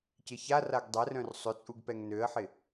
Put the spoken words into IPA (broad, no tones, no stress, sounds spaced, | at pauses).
c ɪ ç a r a ɡ dˤ ɛ r œ̃ r sˤ ʏ t͡sʼ u ɡ p ɛ ŋ n ø ə̯ ħ ɪ